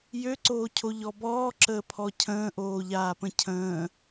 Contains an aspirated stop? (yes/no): yes